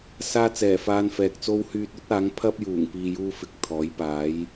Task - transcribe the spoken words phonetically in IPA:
s aː˧ t͡s ɛː˨˩ f aː˧ n f ɛː˨ k̚ t͡s o˥ w h yː˧ t̚ ɵ˥ t̚ aː˨˥ ŋ pʰ ɐ˥ p̚ j uː˨˩ ŋ p iː˨ j uː˧ f ɪ˨ k̚ t̪ʰ ɔː˨˥ j p aː˨˥ j

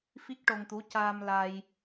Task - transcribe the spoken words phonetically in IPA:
f i˦˥ k̚ ʈ o˧ ŋ t̪ u˧˥ c aː˧ m l a˧ j

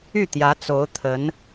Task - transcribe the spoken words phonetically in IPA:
y˥˩ t̪ j ä˧˥ t͡s o˧˥ ʊ̯ t̪ʰ ə˧˥ n

